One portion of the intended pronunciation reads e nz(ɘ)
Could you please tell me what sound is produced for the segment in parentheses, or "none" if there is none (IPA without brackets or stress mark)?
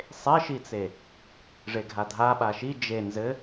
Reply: ɘ